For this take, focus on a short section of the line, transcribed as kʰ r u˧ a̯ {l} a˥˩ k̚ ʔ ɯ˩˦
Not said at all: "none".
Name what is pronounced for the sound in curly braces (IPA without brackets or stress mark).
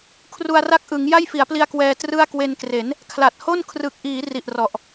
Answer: r